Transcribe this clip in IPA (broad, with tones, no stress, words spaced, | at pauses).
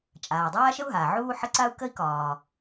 t͡ʃʼaː˩dˤaː˥ʃə˥u̯ɦaː˩ ʕuː˥ħə˥ ǀa˥u̯kə˥i̯ kɒː˩